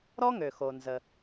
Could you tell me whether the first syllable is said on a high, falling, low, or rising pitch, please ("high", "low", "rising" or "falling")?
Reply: high